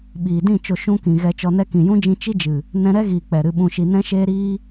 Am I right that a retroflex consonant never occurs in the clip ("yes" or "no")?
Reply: yes